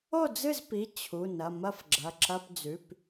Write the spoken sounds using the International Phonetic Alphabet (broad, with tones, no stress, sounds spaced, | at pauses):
o˥˨ d͡z ɨ˥˨ z p i˩˧˩ t͡ɕʰ u˩˧˩ n ɐ˩˧˩ m ɐ˥˨ f ɡ͡ǁ ɐ˩˧˩ ǁ ɐ˧˥˧ p d͡z ʉ˩˧˩ p